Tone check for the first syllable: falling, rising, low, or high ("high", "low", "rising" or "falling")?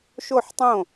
falling